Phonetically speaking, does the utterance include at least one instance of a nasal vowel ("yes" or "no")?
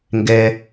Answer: no